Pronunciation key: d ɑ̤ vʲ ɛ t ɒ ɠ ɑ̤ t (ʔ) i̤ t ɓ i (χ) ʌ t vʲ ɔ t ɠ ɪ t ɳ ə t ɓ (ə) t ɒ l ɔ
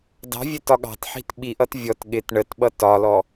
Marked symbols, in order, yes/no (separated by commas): no, no, no